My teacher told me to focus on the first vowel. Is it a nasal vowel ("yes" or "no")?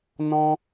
yes